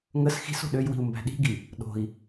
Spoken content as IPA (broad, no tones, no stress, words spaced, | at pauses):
ŋəs xi̤so̤ ɗøjwi̤u̯ mbæ̤ɗi̤ɡi | ɗo̤i̯